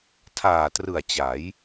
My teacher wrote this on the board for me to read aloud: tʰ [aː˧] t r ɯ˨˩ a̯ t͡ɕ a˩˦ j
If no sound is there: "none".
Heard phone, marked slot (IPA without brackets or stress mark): aː˨˩